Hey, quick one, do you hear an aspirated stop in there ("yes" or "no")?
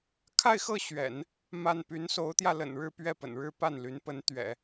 yes